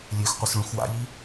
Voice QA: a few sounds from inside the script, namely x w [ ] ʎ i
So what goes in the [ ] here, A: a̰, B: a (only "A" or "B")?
A